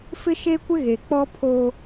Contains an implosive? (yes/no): no